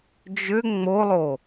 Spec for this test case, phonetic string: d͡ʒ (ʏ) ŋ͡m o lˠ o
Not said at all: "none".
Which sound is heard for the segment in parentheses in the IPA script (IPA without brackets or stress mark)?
ʏ